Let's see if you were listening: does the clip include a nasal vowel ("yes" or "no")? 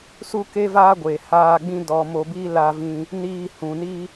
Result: yes